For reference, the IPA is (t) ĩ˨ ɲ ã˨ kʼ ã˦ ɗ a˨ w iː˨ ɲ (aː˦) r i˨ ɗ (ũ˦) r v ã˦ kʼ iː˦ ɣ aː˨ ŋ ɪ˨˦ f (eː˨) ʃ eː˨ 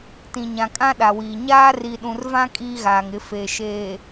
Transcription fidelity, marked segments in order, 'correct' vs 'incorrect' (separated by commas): correct, correct, incorrect, correct